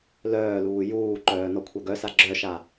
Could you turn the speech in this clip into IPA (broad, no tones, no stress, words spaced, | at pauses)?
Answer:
lœːluː juːǃœː nɔkʷʰœɡœsa ɡ͡ǁœʃa